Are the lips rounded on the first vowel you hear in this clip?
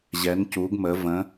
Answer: no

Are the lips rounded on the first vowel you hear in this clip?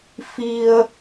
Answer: no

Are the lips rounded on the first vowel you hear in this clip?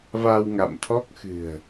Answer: no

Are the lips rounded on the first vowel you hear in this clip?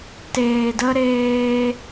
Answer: no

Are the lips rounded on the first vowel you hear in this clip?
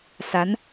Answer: no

